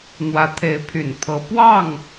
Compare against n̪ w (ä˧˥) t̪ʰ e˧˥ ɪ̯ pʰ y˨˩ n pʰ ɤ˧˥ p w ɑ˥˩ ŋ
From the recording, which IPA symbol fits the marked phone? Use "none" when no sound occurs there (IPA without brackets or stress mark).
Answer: ä˧˥